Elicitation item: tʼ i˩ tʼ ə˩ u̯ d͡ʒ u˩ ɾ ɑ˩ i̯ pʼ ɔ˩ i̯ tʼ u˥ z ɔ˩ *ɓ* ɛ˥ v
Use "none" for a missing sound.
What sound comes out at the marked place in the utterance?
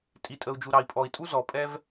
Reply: pʼ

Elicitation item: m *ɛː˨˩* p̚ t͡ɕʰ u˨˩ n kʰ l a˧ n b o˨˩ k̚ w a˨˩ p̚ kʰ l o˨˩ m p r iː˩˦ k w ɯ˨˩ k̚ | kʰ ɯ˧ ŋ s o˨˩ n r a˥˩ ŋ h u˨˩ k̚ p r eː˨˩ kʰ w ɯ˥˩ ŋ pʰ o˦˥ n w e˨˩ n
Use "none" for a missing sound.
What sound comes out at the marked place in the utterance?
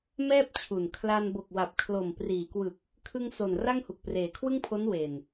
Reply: ɛː˥˩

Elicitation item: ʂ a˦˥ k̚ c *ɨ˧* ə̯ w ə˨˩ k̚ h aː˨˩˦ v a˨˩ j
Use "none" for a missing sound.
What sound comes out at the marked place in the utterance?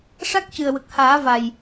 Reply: ɨ˨˩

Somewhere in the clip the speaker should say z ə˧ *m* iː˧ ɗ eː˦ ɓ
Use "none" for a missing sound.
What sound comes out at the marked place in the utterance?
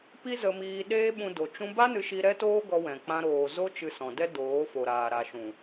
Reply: m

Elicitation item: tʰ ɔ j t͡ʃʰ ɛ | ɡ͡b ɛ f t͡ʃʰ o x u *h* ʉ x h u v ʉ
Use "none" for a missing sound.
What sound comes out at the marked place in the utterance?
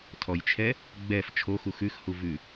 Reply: x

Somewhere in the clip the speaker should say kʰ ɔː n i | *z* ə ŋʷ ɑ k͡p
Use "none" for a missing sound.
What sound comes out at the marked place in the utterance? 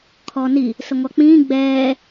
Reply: s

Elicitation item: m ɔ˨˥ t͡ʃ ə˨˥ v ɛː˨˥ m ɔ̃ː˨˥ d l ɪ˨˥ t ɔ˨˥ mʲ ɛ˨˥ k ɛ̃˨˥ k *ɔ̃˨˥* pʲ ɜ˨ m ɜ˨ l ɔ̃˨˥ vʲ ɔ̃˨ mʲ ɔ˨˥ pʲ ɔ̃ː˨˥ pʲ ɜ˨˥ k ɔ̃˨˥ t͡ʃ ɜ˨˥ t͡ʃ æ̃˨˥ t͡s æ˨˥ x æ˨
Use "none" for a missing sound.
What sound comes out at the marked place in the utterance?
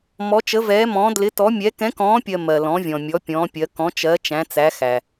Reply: ɔ̃ː˨˥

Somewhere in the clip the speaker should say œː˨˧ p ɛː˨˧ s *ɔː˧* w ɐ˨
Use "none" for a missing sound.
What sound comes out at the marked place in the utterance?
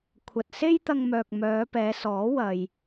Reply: ɔː˨˥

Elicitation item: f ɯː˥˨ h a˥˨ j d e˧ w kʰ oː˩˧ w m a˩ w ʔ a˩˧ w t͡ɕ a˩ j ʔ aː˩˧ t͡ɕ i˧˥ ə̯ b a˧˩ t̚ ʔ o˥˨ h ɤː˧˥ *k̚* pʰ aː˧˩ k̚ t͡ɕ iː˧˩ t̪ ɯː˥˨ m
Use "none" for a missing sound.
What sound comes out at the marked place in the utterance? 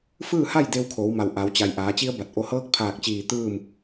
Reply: k̚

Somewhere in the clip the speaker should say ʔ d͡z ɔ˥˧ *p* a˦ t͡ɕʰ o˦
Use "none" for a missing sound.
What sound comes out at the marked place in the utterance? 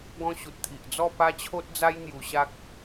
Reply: p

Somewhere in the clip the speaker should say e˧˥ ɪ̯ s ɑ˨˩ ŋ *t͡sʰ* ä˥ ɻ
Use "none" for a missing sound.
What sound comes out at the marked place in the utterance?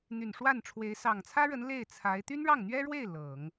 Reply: t͡sʰ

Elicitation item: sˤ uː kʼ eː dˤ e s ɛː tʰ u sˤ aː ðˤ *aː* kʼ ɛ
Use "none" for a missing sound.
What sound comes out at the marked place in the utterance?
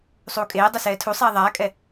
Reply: aː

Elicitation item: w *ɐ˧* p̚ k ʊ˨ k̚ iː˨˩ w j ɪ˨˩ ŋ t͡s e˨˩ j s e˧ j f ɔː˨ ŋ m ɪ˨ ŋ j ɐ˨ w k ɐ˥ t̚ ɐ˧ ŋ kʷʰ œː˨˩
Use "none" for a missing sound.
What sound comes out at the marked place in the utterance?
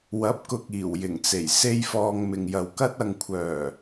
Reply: ɐ˨˥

